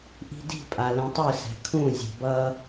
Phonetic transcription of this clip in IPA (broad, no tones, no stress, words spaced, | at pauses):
ʔi̤di̤ pʼalɛ̃tˤɯ sɛ̤kʰũ zʲe̤bʌ